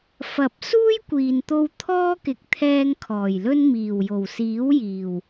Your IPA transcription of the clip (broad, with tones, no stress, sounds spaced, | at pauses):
f ɐ˨˥ p̚ s uː˥ j kʷ iː˨ n t̪ o˧ w t̪ʰ ɔː˥ k ɪ˨ k̚ t̪ʰ ɛː˧ ŋ kʰ ɔː˨˩ j l ɵ˥ n m iː˨˩ w j o˨˩ w s iː˨˥ w j iː˨˩ w